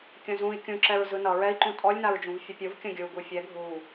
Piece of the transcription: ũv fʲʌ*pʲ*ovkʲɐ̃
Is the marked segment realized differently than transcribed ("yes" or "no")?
no